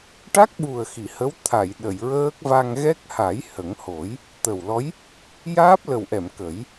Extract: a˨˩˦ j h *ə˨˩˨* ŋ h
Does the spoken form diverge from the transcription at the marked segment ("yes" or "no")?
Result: yes